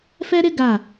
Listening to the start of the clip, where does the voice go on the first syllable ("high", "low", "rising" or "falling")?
high